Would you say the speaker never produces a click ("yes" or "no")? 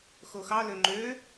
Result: no